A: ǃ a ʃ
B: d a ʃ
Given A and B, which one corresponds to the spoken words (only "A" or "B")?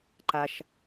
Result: A